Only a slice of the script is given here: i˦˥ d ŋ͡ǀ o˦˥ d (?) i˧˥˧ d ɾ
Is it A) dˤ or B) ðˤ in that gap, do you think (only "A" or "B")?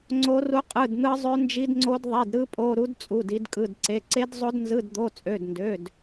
B